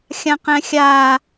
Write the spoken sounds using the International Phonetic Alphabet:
xʲ ã q ɛ̃ xʲ a

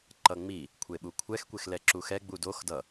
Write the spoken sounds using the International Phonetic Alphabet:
ǃ ʌ ŋ͡m i | kʷʰ e ɓ u kʷʰ ɛ x kʷ e x l ɛ ǁ u x ɛ ɡ͡b u d o x d ʌ

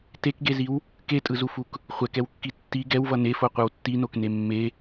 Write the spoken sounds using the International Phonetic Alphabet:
t e k ɡ e z i w | k e tʼ ɯ z u f u k | χʷ ɛ k ɛ w kː i tː i ɡ ɛ w v ʌ n e f o qʷ ɯ w tː i n o k n e mː e

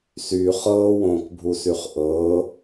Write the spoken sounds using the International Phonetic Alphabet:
s y χ ɤː w õː k bʱ u s y χ ʔ ɤː

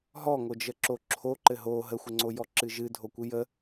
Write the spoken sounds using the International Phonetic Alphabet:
ɦ ɔ ŋ o d͡ʒ ə ǁ o ǁʰ o ǃ ɘ ɦ o ɦ ə xʷ ɘ ŋ͡ǀ o j ɔ ǁ ɨ ʒ ɨ dʱ o kʷ ɨ j ə

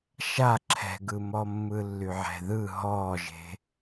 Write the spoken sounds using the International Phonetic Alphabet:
ʃ a ǁʰ ɛ̤ ɡ ɯ m ɔ mː ɯ lː y ʕ ɛ̤ ð ɯ ɦ ɔː ʒ e̤

